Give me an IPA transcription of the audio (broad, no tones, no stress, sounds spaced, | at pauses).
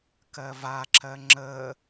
k ɜ v a ǁ ɜ ŋ͡ǁ ə